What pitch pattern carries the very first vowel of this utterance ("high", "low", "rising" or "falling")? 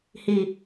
low